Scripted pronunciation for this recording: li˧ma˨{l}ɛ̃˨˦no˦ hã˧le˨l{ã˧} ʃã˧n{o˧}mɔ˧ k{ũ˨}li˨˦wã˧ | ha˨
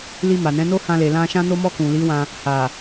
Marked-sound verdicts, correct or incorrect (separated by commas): incorrect, correct, correct, correct